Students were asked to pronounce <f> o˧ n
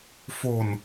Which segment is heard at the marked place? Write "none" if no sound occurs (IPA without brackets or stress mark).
f